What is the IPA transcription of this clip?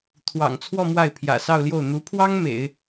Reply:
t̪ʰ w ɑ̰˨˩ ŋ t͡sʰ w ɔ˥˧ m w a˥˩ ɪ̯ pʰ j ä̰˨˩ s ɑ˥˧ ʊ̯ l j o˥˩ ʊ̯ n̪ u˧˥ pʰ w ɑ˥ ŋ m ḛ˨˩˦ ɪ̯

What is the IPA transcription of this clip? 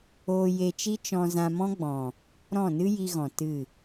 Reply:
oː˧ j e˧ t͡ʃ i˦ t͡ʃ ɔ̃˧ z ã˧ m ɔ̃˦ ɡ͡b ɔ̃˨ | ɾ ɔ̃˦˨ n ɨ˦ j i˧ ɣ ɔ̃˨ t ɨ˦˨

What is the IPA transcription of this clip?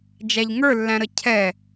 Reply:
d͡ʒ æ ʎ ŋ ə˞ lː æ̃ ɾ ə cʰ ɛ

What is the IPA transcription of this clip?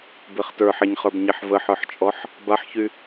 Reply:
b e χ t ə˞ ħ ɛ ɲ χ ə˞ b ɲ e ħ v ə ħ ə˞ ħ t͡ʃʼ ɔ ħ | b a ħ ç y

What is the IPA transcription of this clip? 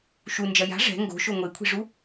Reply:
ʃ u n d͡ʒ ɐ j a̤ ʐ ɛ̤ ŋ ɡ o̤ ʃ o ŋʷ e kʷʰ i̤ ʐ u

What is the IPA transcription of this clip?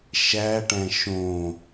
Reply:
ʃ æ ʈ æ̃ ʃ õ

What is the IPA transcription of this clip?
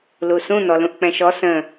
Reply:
l u s ũ n̪ ɔ l ũ ʔ k͡p ɛ̃ ʃ ɔ s ə̃

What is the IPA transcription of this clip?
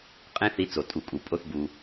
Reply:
qʼ ẽ˥ θ i˥ t͡s o˩ tʼ u˨ kʼ u˩ pʼ o˦ θ b u˩

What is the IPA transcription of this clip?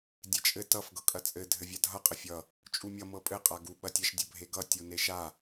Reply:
dʲ e t͡ʃʼ ɘ t ʌ f ɡ ɤ kʼ ɐ t͡sʼ ɘ dʱ ɘ vʲ a dʱ ʌ qʼ ɘ fʲ ʌ | t͡ʃʼ u mʲ ʌ m ɤ pʼ ɘ qʼ a ɡ u ɓ ɐ tʲ ɐ ʃ dʲ ɤ bʱ e ɡ ʌ tʲ u n e ʃ a

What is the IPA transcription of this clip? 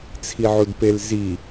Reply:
t͡sʰ i ʕ u d p e l z i

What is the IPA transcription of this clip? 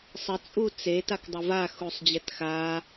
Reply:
sˤ ə t͡sʼ u t͡s e t a k dˤ ə v a x u sˤ d͡ʑ ɛ t x a

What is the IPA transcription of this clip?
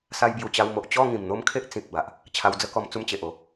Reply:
s a˧ j b j u˨˩ t͡ɕ a˧ w m o˨ ʔ t͡ɕ ɔ˥˧ ŋ ĩ˨˩ m n̪ o˦ m kʰ e˦ ʔ t͡s ĩ˨ k̚ b a˨ ʔ | t͡ɕʰ a˧ w d͡z ə˦ k ɔ˧ m t͡s u˥˧ m t͡ɕ e˨ ʔ o˥˧

